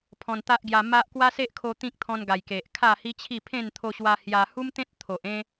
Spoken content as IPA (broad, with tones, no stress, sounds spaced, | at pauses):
pʰ ɔ̃˧ n t̪ a˦ ʔ ɡ j a˧ m a˦ ʔ k w a˦ s e˦ ʔ kʰ o˧ t̪ ĩ˦ k̚ t̪ʰ ɔ̃˧ n ɡ a˨˩ j k e˨ ʔ kʰ a˥˧ h i˦ t͡ɕʰ i˥˧ pʰ ẽ˥˧ n t̪ʰ o˧ ɕ w a˧ h j a˧ h u˦ m t̪ ẽ˦ t̚ t̪ʰ o˨ ʔ ẽ˦